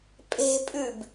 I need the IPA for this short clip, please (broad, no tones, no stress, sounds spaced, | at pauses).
pʼ e̤ pʼ ʉ b